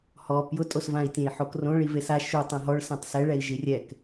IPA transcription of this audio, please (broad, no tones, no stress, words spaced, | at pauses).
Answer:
hɔ pjʊtʼosvãi̯tʲẽi̯ ħokrõ ɭivesa ʃu tˤãɦɔɭsãtˤ sɛɭɛi̯ ʒirʲɛk